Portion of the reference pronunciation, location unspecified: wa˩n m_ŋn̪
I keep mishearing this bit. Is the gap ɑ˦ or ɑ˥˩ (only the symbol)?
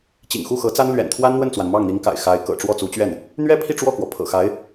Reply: ɑ˥˩